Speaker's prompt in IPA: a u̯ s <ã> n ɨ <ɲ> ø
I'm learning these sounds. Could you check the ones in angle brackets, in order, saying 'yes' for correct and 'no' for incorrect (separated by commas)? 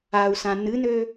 yes, no